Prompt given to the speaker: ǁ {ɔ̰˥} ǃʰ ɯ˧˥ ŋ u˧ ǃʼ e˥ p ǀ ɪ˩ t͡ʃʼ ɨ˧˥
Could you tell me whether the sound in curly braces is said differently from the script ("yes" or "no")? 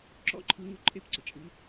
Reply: no